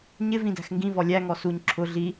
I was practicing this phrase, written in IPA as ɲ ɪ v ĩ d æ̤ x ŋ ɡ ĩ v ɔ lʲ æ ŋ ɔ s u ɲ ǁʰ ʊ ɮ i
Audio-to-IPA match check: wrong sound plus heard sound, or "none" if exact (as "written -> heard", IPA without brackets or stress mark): none